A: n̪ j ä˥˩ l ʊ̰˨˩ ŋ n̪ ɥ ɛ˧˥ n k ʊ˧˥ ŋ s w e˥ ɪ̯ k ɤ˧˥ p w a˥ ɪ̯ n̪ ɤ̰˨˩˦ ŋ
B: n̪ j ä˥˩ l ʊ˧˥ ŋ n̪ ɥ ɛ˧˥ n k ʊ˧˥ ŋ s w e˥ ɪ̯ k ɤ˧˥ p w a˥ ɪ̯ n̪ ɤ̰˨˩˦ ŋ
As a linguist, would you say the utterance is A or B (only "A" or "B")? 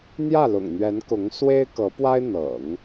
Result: A